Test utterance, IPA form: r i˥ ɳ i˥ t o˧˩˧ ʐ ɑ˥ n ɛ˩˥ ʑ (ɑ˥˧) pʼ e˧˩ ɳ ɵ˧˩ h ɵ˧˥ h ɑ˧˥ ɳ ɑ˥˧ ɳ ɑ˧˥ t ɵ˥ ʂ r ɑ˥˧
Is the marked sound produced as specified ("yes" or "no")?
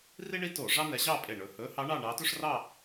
yes